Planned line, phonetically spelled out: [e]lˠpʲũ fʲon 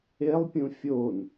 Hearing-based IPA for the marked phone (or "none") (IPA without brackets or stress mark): e